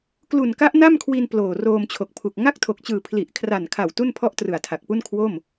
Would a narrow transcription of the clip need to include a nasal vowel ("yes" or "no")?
no